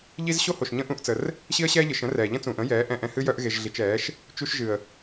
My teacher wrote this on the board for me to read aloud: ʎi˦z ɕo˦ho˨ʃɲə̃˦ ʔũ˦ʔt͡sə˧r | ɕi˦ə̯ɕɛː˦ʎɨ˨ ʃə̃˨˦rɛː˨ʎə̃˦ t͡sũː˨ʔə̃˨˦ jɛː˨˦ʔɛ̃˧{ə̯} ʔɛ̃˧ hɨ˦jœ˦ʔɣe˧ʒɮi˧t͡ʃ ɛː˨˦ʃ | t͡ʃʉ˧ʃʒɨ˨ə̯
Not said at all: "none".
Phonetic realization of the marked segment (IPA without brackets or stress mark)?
none